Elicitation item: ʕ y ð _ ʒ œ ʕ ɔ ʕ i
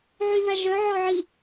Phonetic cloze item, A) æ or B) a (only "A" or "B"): B